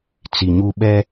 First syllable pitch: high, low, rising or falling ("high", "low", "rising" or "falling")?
low